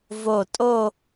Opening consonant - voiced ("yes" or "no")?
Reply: yes